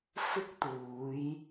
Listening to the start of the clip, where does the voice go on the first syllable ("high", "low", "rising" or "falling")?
high